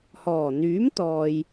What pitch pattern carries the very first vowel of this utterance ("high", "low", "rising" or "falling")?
low